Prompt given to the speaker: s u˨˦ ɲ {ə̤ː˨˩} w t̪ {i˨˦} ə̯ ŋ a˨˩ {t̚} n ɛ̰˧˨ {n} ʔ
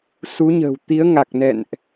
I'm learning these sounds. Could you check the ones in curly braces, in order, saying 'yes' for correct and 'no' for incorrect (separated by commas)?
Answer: yes, yes, no, yes